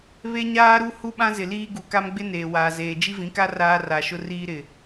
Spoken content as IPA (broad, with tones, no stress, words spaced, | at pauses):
βe˦ɲaː˦ɾu˦ hu˦ɓã˦zɪ˨liː˦ ɡu˨ka˦mɡ͡bɪ˦ neː˨waː˨zeː˨ d͡ʒi˦vĩ˨˦ka˦ raː˦ra˨ ʃʊ˦riː˦ɾɪ˨